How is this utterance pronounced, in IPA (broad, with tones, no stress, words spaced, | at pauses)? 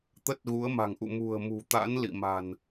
t̪ə˦˥t̚ɣu˨˦ə̯ma̤˨˩ŋʔṵ˧˨ mṳ˨˩ə̯mṳ˨˩t̪a̰˧˥n lḭ˧˨ma̤˨˩n